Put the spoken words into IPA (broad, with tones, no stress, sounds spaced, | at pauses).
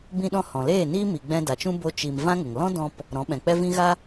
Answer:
b ĩ˧ ɗ ɔ̃˧ h ɔ̃˨ l eː˦˨ n iː˦ m i˨ ɡ͡b ɛ̃˧ d a˨ t͡ʃ ũ˦ b o˧ t͡ʃ i˨ m v ã˦ ŋ ə˨ ŋ l ɔ̃˦ d ɔ̃˧ p | ɾ ɔ̃˨˦ ɓ ɛ̃˨ k͡p ɛ˦ v ĩ˦ ɣ a˦